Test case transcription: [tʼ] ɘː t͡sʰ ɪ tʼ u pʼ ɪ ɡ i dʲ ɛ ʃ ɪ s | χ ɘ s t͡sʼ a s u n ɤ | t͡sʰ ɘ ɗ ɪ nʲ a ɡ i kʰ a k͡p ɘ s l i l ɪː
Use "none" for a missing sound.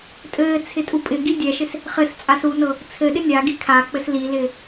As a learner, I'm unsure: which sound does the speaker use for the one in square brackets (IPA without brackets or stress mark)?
tʼ